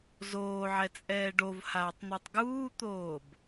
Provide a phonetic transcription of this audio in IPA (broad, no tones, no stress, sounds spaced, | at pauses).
z oː ʕ ɛ t͡sʼ ɛː ɖ o v h aː tˤ n̪ u tˤ ɡ uː t̪ oː b